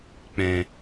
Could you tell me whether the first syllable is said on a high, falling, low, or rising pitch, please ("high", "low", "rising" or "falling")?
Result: low